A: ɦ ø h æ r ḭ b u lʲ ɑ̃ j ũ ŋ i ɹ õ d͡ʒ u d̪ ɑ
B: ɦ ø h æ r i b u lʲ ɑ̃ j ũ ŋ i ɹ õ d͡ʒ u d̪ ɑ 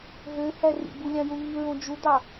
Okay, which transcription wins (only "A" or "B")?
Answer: A